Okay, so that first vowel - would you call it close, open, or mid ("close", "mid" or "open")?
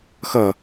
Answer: mid